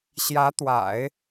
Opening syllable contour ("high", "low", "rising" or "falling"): rising